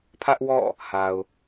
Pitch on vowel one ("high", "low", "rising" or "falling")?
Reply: high